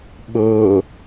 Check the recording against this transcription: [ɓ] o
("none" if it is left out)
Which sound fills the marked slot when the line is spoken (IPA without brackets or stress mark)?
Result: ɓ